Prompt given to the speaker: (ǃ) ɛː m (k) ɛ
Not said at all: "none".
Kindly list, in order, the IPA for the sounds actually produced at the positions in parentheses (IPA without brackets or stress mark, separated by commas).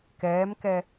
k, k